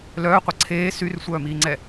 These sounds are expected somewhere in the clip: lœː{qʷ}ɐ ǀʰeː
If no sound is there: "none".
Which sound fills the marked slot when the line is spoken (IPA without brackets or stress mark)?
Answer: qʷ